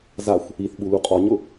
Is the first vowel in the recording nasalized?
no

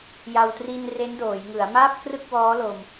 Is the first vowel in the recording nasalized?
no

